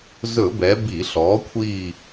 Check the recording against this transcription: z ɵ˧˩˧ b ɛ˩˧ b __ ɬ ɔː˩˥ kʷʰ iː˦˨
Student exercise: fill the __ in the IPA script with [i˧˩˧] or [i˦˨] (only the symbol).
i˧˩˧